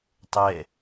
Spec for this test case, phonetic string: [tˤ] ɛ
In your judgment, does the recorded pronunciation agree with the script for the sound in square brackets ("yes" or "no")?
yes